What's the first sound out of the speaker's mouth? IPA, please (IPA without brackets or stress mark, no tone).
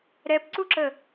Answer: ɾ